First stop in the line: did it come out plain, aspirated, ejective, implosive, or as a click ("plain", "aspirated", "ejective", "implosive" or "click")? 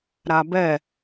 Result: plain